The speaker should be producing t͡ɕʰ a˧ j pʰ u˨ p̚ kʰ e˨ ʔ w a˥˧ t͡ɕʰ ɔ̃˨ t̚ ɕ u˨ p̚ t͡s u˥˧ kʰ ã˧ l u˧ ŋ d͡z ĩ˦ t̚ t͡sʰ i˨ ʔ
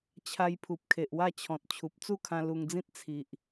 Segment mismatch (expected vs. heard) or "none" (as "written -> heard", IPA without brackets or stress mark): ɕ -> t͡ɕʰ